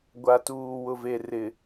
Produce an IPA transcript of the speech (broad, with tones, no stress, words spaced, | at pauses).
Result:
ɡʷa˨tuː˨ wʊ˨ve˨rɪ˨